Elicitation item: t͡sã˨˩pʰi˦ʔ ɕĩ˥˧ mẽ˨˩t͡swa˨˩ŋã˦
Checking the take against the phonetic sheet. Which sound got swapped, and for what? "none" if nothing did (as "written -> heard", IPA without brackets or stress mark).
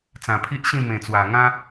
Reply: none